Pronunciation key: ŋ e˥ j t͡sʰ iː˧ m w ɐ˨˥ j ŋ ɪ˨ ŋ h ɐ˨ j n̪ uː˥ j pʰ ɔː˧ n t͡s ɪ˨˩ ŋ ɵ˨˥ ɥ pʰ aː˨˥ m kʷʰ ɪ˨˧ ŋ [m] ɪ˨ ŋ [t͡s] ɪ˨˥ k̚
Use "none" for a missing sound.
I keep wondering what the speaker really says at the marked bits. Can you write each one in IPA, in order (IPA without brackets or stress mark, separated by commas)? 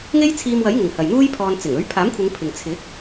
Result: pʰ, t͡sʰ